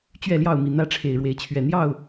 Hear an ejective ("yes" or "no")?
no